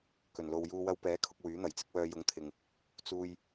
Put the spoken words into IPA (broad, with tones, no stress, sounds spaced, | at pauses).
k ɵ˨˩ n l o˨ w j uː˧ w ɐ˧ w p ɛː˨˥ kʰ ʊ˧ k̚ w yː˨˥ n̪ ɐ˨˩ j t͡s ɪ˥ k̚ w œː˧ j ʊ˨˥ ŋ t̪ʰ ɪ˨ ŋ | t͡s uː˧ j